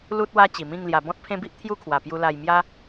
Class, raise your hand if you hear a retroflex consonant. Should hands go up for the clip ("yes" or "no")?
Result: no